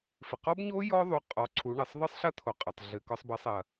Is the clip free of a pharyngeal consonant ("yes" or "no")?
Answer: yes